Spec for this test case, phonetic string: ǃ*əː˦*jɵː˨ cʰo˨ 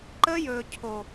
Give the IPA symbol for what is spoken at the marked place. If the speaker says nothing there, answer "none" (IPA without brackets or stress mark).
əː˦